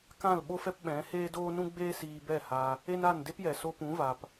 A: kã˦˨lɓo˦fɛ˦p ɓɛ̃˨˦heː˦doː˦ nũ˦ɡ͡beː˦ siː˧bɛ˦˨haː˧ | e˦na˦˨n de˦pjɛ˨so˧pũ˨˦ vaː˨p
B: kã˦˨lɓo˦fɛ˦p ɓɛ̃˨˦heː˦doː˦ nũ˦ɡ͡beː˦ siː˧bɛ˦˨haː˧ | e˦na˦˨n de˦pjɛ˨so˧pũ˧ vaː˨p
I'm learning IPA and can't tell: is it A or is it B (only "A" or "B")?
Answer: A